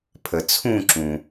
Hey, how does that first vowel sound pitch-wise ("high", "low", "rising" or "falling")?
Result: low